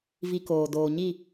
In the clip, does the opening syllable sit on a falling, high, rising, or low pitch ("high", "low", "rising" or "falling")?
high